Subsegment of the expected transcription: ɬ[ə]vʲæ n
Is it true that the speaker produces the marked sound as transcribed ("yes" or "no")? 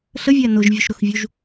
yes